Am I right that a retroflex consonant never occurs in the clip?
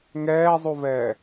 yes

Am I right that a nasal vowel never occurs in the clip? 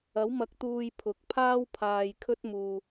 yes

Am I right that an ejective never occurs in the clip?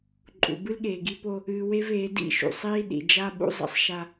no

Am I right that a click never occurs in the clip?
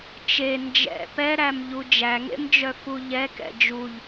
yes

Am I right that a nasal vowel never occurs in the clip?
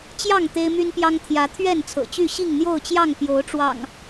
yes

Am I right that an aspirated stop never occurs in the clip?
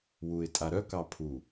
no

